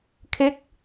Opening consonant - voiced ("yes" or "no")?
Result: no